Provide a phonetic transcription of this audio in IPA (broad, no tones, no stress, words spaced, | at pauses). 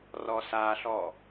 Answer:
rɔsaɬɔ